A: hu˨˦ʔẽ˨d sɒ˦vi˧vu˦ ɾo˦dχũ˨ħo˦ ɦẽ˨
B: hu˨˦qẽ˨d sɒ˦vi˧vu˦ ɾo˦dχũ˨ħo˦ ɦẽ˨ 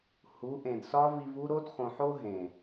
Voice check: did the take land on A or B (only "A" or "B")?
A